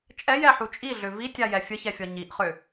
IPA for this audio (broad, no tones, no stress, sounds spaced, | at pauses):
t͡ʃʼ ɛ j ɛ ħ u t͡ʃʼ i ɮ ʏ v i tʲ a j ɛ fʲ ə ç ɛ fʲ ɒ ɲ i ʔ χ ʏ